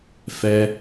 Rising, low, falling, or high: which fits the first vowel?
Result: high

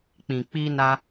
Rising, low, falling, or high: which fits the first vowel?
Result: low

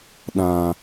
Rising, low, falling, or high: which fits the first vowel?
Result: low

